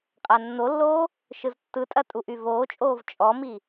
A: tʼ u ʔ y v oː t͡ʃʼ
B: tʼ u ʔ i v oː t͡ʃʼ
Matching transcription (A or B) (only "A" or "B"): A